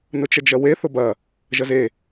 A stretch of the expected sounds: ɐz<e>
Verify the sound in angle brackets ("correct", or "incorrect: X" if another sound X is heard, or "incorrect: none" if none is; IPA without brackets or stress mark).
correct